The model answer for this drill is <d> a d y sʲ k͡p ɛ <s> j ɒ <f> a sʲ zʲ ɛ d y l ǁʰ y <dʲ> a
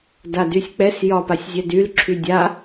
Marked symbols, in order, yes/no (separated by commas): yes, yes, no, yes